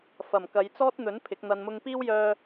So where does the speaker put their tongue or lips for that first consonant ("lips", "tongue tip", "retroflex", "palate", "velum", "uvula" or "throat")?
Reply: lips